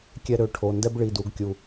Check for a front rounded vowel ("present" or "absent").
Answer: present